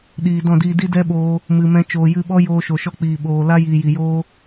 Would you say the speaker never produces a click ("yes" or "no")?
yes